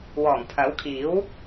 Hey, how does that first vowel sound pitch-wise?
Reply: low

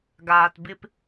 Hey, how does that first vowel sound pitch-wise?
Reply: low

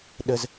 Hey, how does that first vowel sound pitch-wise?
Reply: high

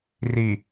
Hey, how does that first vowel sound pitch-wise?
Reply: low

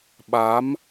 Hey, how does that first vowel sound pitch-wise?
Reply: rising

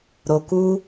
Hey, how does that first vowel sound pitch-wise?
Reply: low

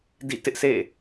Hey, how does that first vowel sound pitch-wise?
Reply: falling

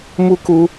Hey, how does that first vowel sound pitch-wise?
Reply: high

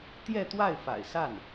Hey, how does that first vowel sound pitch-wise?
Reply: falling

